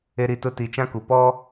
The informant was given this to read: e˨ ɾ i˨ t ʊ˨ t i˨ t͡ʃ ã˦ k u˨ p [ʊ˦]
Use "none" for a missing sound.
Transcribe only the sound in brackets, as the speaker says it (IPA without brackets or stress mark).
ɔ˦